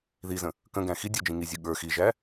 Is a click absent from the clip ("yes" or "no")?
yes